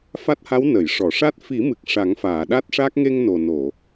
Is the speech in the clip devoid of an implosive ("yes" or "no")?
no